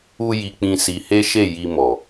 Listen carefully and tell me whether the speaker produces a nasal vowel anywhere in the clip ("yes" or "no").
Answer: yes